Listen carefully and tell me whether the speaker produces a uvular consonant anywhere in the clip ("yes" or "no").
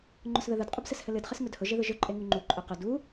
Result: yes